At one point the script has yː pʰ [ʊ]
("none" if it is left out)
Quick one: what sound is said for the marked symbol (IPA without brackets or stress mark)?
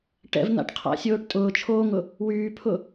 ʊ